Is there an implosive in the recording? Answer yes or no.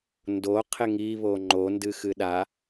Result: yes